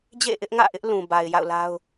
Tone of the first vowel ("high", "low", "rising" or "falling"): falling